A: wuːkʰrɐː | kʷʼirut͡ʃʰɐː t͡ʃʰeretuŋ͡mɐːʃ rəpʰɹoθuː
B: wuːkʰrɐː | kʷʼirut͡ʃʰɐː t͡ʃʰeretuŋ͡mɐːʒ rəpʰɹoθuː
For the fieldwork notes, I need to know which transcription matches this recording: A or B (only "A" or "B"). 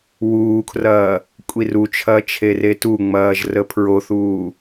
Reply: B